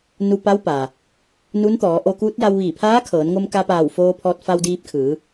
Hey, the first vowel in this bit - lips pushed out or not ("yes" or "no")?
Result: yes